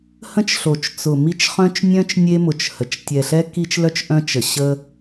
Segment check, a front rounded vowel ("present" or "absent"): present